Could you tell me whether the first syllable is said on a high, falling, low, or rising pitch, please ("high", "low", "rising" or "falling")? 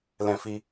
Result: high